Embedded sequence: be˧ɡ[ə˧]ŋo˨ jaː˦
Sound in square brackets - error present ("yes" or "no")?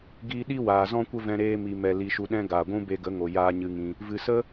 yes